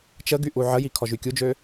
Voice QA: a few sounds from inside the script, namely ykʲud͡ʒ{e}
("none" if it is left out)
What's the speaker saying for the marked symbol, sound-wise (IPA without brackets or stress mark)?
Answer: ø